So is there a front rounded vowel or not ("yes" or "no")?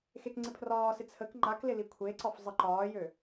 yes